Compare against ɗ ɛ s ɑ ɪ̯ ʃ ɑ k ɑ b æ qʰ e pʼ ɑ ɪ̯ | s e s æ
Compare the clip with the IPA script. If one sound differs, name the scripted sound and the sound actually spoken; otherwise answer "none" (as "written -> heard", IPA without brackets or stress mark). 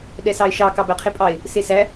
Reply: none